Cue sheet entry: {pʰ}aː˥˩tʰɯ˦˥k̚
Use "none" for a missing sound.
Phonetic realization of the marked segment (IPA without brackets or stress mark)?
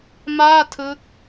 m